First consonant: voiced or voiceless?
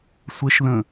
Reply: voiceless